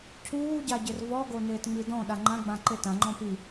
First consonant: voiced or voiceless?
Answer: voiceless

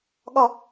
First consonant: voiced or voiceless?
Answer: voiced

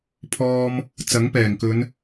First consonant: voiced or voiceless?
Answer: voiceless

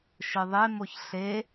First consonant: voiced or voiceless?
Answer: voiceless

